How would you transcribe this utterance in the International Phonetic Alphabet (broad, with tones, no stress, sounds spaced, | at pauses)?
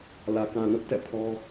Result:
l ä˨ k ã˨ n ʊ˦ ʔ t ɛ̰˦˨ pʰ ɔ˦